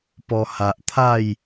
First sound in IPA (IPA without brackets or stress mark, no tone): p